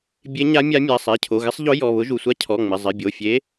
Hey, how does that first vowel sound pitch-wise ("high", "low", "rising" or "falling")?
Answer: rising